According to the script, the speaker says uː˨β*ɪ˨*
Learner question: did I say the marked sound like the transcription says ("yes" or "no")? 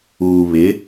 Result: no